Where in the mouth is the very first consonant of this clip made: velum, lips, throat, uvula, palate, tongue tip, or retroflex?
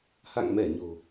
throat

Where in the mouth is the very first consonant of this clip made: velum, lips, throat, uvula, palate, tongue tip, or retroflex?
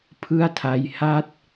lips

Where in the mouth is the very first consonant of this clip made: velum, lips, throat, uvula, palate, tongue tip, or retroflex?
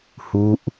throat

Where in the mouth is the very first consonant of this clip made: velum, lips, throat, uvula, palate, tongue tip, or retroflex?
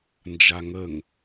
tongue tip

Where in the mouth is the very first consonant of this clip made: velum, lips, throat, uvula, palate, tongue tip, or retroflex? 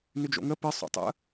tongue tip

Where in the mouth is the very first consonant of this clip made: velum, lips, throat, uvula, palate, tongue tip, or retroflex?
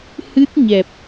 throat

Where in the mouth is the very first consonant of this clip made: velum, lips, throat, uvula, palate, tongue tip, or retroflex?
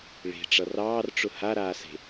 retroflex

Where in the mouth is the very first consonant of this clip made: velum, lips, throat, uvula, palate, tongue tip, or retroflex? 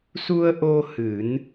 tongue tip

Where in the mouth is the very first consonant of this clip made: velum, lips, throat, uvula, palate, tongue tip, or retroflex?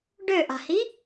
retroflex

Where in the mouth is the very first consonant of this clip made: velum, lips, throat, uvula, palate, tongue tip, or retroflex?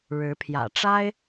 retroflex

